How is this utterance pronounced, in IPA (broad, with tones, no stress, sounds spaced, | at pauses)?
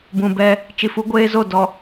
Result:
b ũ˨ b ɛ˦ | t͡ʃ i˨ f u˦ ɡʷ eː˦ z o˦˨ d ɔ˨